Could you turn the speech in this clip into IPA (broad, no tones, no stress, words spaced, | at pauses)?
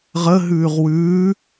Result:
ʁəɦʉːʁ wʉː